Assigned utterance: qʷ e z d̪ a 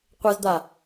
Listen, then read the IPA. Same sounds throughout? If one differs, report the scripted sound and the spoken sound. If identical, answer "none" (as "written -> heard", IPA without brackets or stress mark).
none